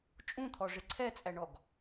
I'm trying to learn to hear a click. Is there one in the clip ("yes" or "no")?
yes